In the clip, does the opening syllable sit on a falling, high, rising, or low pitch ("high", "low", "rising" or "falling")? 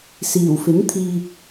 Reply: low